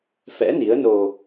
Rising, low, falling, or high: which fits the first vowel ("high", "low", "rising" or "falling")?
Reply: rising